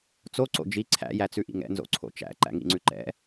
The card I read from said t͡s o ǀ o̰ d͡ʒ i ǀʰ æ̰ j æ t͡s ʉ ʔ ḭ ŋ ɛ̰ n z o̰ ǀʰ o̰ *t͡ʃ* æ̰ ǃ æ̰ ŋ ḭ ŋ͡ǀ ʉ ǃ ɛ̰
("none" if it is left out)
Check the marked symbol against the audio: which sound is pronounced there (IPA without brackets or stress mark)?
t͡ʃ